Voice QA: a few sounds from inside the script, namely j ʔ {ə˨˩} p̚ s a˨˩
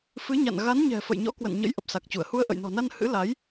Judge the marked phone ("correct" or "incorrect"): correct